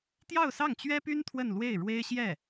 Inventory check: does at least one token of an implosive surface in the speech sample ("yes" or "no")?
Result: no